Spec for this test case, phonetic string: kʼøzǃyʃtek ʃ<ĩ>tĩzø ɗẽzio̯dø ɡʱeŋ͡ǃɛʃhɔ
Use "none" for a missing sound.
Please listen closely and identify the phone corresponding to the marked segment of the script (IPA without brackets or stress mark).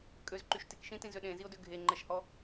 ĩ